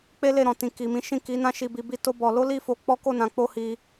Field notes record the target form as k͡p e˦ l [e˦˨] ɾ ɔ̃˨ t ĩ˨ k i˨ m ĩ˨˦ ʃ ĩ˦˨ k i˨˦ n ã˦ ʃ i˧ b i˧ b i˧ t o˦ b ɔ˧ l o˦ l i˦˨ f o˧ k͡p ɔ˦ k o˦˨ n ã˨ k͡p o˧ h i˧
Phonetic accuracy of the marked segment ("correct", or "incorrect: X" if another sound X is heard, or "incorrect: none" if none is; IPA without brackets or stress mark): correct